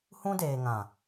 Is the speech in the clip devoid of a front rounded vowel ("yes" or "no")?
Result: yes